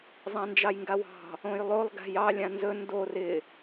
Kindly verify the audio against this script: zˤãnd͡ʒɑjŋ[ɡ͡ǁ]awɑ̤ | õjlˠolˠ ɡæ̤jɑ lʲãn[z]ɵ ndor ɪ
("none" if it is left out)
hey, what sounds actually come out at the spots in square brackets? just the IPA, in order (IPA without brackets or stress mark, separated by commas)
ɡ, z